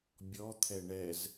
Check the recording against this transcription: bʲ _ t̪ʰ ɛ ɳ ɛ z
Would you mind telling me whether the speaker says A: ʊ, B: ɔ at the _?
B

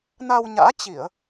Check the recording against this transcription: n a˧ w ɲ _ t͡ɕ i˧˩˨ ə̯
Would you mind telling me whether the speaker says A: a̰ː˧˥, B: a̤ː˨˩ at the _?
A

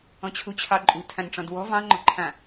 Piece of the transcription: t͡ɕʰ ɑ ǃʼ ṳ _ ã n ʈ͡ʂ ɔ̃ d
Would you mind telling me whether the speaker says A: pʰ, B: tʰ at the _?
B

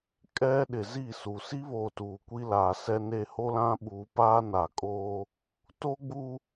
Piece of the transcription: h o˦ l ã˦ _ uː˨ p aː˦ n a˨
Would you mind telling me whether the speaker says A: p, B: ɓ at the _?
B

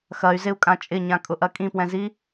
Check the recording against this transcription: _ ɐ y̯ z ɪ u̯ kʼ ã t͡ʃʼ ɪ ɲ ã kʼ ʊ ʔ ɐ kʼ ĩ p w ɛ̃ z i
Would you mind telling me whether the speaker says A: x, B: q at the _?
A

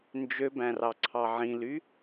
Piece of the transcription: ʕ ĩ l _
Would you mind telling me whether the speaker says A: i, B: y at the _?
B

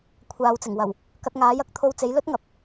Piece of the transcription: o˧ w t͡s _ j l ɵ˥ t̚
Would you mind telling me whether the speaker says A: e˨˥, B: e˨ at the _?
A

